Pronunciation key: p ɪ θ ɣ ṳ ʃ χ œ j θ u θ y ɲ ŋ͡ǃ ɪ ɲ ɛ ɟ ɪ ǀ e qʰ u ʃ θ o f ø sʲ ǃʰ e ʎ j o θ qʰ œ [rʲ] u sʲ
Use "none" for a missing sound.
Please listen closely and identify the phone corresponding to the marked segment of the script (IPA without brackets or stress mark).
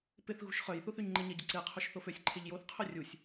rʲ